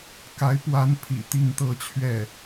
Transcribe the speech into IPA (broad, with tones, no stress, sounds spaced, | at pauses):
k a˧˥ ɪ̯ p w a˧˥ n pʰ ḭ˨˩ t̪ i˥˧ ŋ t̪ ɤ˥˧ t͡ɕʰ ɥ ɛ˥˩